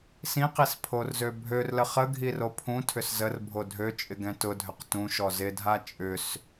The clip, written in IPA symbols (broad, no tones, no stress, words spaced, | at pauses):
sĩqis pʰorzøbʱørlə χə ɡʱiropʰũtʰʏs zərbʱo dʱøt͡ʃʼɪ ɡɛ̃tʊdʱʏq tũʃɔ zɪdʱa t͡ʃʼʏs